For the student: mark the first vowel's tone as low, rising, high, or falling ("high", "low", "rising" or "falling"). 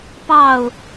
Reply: falling